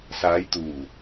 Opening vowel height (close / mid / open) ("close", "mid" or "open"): open